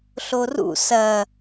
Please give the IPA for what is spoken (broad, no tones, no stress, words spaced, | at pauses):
ɬorṵ sɐː